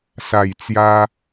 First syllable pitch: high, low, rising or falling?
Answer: low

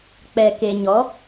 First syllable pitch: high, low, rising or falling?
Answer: low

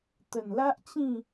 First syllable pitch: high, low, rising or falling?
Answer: low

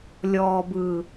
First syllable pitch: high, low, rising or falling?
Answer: low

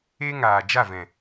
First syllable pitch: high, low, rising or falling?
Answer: high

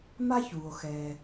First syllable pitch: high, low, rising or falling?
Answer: high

